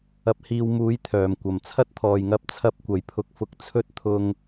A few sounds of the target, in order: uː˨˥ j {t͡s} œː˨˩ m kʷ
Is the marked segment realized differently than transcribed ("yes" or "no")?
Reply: yes